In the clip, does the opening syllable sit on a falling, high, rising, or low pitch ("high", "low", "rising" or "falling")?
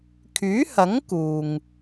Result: rising